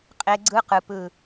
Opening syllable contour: high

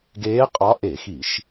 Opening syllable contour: rising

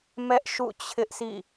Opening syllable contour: high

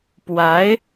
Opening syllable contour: rising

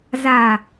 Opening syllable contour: low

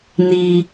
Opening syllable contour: low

